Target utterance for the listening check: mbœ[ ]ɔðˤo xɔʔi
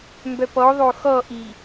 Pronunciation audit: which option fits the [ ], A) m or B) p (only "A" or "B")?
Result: B